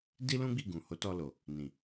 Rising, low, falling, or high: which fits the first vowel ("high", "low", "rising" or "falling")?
high